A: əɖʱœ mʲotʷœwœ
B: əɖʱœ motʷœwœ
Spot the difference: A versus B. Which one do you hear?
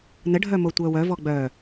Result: B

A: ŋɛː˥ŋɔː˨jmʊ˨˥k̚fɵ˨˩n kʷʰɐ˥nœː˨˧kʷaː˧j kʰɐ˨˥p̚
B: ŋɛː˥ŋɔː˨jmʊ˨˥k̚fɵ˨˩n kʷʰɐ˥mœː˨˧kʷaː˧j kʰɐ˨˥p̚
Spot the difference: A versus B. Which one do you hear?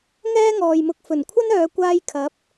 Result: A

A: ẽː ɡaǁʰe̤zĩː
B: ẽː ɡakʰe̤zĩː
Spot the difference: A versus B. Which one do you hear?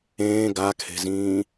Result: B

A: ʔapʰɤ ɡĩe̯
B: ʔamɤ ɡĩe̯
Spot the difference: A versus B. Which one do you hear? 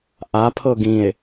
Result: A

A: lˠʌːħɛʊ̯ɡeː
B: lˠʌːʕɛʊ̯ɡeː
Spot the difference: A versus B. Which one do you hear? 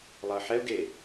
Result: A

